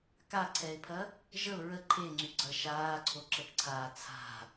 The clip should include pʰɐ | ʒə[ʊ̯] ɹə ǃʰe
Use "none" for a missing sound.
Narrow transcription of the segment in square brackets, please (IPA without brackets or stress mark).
ʊ̯